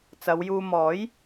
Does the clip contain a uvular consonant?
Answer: no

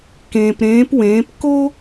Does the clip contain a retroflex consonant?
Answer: no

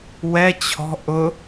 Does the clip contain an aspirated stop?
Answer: yes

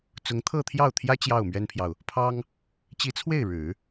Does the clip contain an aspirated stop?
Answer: yes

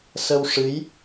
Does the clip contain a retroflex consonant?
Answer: yes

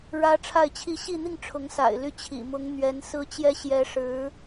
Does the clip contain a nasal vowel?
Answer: no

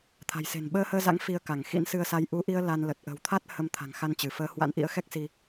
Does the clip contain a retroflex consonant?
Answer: no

